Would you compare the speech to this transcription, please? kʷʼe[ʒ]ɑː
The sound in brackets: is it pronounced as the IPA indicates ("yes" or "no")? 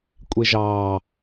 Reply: yes